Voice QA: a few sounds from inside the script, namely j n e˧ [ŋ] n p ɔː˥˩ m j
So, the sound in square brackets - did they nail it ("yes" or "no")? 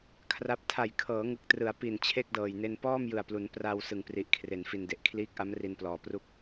no